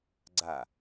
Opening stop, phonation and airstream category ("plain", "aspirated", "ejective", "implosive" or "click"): click